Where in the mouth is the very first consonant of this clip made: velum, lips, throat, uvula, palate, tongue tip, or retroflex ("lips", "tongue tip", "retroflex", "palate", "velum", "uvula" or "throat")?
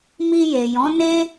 lips